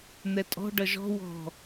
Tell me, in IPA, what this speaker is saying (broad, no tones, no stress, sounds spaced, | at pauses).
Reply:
n̪ ɛ tʼ ɔ̤ ɖ ʌ ʒ ɔ̤ w ɔ̤